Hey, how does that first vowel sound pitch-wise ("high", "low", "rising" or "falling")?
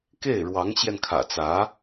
falling